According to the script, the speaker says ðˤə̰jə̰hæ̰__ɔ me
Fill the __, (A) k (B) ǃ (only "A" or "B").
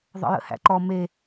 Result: B